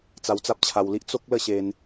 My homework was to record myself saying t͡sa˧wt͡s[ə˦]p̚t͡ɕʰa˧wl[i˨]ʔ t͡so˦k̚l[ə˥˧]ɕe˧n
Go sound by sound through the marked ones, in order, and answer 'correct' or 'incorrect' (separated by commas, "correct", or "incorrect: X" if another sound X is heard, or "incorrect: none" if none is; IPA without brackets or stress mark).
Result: incorrect: a˦, incorrect: i˦, correct